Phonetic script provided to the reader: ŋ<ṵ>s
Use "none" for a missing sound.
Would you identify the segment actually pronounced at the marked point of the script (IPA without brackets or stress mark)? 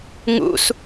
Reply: ṵ